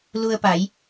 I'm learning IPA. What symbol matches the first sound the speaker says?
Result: l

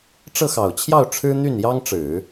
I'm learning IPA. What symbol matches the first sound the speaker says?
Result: ʈ͡ʂ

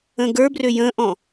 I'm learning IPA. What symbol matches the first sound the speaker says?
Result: ə̃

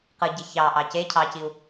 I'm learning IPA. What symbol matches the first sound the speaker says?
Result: q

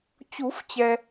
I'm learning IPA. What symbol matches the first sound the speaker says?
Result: t͡ɕ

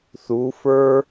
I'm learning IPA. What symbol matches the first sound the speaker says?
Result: θ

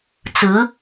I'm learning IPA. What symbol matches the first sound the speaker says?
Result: t͡s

